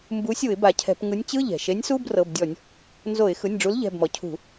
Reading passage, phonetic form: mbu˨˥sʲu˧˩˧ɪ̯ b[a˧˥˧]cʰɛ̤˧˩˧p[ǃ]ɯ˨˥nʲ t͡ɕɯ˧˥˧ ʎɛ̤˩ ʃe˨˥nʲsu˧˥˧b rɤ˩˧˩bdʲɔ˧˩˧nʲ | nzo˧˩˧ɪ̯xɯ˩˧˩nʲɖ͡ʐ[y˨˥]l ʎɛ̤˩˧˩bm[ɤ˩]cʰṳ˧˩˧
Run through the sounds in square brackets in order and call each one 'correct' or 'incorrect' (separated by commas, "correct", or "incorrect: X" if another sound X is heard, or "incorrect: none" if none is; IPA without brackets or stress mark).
incorrect: a˩, incorrect: ŋ, incorrect: u˨˥, incorrect: ɔ˩